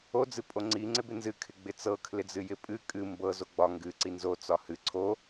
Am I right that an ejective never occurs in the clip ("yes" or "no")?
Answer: no